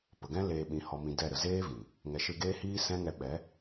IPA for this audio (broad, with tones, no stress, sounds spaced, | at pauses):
p ə˨ ɡ ɛ̃˦ l eː˧ ɓ ĩ˨˦ h ɔ˧ m ĩ˧ d ɛ˦˨ ɾ ə˧ z eː˦ v ĩ˨ | ŋ ɛ˨˦ ʃ ɨ˧ ɡ eː˦ h iː˦ s ɛ̃˦ ŋ ɛ˧ ɓ ɛ˨˦